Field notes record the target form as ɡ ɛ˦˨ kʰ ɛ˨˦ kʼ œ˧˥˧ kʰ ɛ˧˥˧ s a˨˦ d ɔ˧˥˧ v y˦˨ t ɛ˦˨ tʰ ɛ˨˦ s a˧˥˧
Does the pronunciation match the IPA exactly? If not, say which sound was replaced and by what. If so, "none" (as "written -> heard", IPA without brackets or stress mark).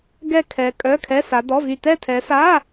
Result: none